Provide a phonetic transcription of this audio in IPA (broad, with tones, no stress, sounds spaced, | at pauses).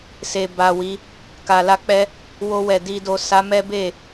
s e˨ b a˨ w i˨˦ | k a˨ l a˧ k͡p ɛ˦ | w o˧ w ɛ˨ d i˨ d o˨ s a˨˦ m ɛ˦ b e˦˨